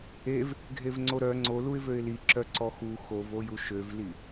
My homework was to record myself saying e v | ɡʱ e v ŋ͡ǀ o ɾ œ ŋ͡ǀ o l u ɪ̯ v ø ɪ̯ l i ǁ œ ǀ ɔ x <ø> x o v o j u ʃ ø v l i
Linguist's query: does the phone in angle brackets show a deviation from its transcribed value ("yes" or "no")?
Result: yes